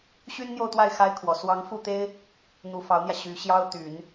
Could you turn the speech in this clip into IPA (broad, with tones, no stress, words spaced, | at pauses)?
ɕy˥nn̪jo˥˧ʊ̯t̪wa˥˩ɪ̯ xa˥ɪ̯kʰwɔ˨˩ swɑ˧˥ŋ fu˥˩t̪e˥ɪ̯ | n̪u˧˥fɑ˧˥ʊ̯n̪jä˧ ɕy˧˥ ɕjɑ˥ʊ̯t̪y˨˩˦n